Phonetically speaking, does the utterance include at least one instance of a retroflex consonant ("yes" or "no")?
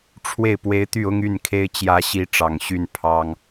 yes